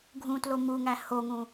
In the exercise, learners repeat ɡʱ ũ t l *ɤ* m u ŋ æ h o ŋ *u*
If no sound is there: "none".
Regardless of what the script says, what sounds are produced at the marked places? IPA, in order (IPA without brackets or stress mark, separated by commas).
o, ũ